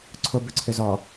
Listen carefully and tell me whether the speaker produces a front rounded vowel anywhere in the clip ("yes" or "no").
yes